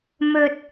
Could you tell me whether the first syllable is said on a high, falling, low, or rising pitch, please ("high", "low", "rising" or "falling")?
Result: low